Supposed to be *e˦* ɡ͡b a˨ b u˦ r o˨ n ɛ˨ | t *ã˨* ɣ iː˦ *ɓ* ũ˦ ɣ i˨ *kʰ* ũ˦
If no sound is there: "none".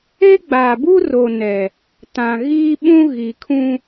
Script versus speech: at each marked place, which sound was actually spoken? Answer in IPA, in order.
e˦, ã˨, ɓ, kʰ

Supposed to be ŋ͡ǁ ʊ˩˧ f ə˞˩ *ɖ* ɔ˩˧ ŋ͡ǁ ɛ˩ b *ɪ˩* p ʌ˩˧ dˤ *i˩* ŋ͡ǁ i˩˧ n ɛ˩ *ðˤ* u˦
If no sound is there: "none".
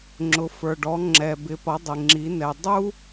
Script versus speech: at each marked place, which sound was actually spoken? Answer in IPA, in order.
ɖ, ɪ˩˧, ɪ˩, dˤ

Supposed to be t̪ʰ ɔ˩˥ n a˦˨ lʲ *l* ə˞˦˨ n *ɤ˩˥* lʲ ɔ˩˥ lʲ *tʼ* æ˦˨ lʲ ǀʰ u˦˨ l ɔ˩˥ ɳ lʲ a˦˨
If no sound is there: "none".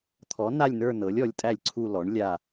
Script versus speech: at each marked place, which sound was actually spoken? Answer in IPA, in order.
n, ɤ˩˥, tʼ

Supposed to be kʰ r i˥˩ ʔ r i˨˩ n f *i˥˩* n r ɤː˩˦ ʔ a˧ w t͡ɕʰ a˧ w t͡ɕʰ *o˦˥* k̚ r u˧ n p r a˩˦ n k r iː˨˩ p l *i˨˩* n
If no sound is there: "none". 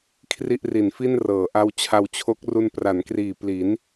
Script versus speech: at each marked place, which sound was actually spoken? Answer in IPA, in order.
i˥˩, o˦˥, i˩˦

